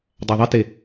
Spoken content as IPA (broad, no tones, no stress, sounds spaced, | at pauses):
dˤ a ðˤ i t e